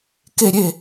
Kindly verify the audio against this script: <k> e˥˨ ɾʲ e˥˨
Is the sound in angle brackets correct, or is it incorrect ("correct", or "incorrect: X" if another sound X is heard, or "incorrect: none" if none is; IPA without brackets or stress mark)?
correct